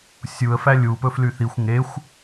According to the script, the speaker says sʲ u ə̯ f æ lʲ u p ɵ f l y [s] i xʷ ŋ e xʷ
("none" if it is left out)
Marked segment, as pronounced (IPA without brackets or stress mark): θ